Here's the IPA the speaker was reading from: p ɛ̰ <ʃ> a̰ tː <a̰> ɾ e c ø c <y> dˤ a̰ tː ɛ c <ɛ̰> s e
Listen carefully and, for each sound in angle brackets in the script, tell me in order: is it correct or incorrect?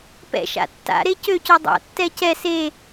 correct, correct, incorrect: ø, incorrect: ɛ

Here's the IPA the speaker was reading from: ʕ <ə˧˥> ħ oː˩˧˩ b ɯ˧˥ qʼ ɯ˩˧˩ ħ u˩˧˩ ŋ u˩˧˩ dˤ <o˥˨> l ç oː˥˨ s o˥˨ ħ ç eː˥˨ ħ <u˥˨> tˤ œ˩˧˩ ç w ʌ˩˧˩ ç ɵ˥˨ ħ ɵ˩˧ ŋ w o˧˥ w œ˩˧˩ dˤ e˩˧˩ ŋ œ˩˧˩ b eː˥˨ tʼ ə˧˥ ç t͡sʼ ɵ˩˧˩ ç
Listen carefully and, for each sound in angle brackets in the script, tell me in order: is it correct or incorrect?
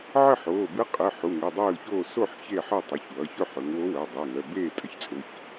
incorrect: ə˥˨, incorrect: oː˥˨, incorrect: ɯ˥˨

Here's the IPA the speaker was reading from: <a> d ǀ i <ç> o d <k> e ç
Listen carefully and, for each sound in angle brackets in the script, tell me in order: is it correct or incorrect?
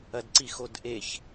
incorrect: ɐ, incorrect: x, incorrect: ʔ

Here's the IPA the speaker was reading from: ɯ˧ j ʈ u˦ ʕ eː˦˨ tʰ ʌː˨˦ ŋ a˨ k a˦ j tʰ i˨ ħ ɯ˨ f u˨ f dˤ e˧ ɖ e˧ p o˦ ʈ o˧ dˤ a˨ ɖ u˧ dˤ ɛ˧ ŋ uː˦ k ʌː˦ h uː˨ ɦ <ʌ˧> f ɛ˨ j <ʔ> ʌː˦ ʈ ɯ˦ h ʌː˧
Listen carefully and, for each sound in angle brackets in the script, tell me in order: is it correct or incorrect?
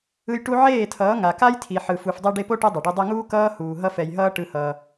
correct, incorrect: ɦ

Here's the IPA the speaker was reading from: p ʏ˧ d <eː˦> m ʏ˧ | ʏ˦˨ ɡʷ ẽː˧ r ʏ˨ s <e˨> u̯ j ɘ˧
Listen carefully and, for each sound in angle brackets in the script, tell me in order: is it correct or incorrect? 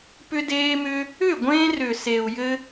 incorrect: eː˧, correct

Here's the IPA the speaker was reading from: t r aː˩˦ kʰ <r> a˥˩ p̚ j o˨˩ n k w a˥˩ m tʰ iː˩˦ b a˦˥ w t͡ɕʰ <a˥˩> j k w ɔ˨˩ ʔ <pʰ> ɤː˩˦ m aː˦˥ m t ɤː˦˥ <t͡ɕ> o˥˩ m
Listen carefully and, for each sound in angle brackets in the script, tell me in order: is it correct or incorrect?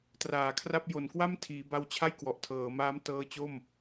correct, correct, incorrect: tʰ, correct

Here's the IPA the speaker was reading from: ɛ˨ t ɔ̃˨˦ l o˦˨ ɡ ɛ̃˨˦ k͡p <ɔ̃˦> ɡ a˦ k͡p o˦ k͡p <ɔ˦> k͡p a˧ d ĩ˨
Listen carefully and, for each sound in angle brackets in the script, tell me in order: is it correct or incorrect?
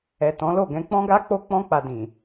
correct, incorrect: ɔ̃˦

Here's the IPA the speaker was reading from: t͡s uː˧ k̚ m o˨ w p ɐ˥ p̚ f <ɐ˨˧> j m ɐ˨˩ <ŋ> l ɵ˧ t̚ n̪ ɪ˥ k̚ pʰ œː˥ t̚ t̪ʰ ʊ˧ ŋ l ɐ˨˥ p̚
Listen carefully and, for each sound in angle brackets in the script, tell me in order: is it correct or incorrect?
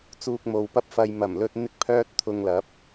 incorrect: ɐ˧, incorrect: m

